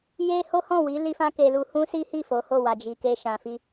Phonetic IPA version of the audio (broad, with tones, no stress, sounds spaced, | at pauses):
j e˦ h o˦ h ɔ̃˦˨ w i˨˦ l i˦ f ã˦ k e˧ l u˧ h ũ˦ s i˦ h i˦˨ f o˨˦ h o˦˨ w a˨ d͡ʒ i˨ k e˧ ʃ ã˨ f i˧